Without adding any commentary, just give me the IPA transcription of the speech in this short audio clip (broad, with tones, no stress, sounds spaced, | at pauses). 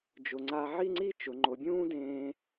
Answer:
d͡ʒ ʊ˩˧ ŋ͡ǀ a˧ ʕ i˥˧ ŋ͡ǀ i˥˧ t͡ʃ ʊ˩˧ ŋ͡ǃ o˩˧ bʲ ũː˥ d ẽː˧